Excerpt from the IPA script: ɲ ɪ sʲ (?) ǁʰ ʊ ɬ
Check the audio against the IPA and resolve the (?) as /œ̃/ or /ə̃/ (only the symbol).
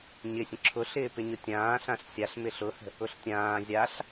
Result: ə̃